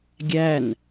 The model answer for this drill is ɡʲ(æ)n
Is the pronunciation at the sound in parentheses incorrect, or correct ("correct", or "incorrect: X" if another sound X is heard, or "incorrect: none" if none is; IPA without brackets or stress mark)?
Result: correct